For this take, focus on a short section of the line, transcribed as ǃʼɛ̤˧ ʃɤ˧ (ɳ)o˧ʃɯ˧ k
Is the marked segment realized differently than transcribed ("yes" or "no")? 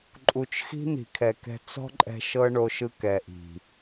no